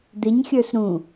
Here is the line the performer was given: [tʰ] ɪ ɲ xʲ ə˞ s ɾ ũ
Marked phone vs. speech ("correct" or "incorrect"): incorrect